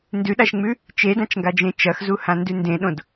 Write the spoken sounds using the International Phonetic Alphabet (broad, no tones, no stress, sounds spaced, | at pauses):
n d ʉ ɗ a ʃ ŋ͡m ʉ | t͡ʃ e d ã t͡ʃ ŋ ɡ a d͡ʒ ẽ t͡ʃ ɐ x z u h ã n d ʉ n d ẽ ɗ õ d